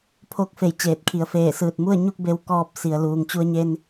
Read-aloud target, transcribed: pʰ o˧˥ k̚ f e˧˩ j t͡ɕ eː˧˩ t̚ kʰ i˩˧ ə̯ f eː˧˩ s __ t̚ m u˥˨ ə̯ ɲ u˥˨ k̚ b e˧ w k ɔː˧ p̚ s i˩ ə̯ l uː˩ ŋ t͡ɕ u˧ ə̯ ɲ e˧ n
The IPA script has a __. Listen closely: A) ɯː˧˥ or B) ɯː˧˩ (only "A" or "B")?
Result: B